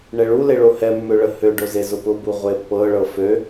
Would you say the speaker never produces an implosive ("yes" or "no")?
yes